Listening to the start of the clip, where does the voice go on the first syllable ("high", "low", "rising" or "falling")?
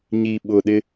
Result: low